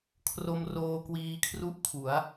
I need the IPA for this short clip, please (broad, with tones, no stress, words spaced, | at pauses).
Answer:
kʰro˧m roː˧kwiː˧kʰru˦˥ʔ kʰu˩˦a̯